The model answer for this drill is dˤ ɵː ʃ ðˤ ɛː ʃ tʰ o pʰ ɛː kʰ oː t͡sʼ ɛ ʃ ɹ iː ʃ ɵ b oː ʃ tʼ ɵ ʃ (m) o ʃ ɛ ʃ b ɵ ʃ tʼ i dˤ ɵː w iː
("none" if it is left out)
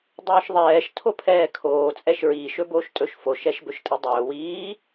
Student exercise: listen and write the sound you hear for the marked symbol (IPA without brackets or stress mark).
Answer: f